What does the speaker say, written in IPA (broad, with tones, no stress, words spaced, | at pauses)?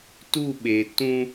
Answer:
tu˦˨ɓe˨ tũ˦